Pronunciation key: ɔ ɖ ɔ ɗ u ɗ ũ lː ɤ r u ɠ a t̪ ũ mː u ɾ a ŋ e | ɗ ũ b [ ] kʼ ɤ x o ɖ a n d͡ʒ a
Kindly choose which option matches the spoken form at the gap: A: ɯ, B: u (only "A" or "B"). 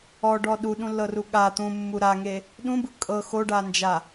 A